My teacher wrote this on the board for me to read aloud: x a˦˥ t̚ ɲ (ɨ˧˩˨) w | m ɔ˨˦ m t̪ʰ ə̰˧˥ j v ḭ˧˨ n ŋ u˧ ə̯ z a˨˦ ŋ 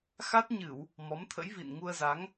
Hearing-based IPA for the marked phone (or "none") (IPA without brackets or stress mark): ɨ˧˩˨